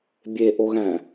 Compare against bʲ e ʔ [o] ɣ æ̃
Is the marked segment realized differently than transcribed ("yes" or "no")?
no